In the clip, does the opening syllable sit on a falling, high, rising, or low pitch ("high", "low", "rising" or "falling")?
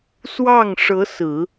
falling